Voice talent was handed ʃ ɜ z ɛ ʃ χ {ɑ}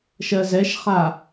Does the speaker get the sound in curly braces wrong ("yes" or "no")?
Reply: yes